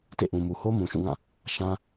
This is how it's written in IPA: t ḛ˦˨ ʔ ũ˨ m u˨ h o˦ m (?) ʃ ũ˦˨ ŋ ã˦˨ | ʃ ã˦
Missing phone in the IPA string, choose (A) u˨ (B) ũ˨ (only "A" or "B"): B